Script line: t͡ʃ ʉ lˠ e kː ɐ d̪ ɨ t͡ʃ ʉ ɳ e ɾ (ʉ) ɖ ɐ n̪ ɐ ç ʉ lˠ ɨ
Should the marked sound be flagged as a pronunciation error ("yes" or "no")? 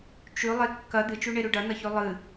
no